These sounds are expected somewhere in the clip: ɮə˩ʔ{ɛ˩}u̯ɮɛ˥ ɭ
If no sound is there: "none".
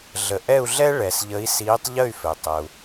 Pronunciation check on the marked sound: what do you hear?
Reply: ɛ˥˨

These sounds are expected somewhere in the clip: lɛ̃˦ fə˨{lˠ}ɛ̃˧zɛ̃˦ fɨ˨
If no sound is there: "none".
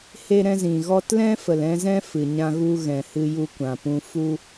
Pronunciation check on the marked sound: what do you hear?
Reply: l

